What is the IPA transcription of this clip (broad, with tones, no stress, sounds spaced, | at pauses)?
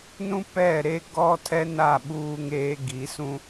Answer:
n ũ˦ p ɛ˦˨ ɾ e˦ ɡ ɔ˦ tʰ ɛ˦ n a˦˨ ɓ uː˦ ŋ eː˦ ɡ i˨˦ s ũ˦